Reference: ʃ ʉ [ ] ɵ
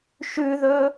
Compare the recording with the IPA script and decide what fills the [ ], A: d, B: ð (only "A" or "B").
B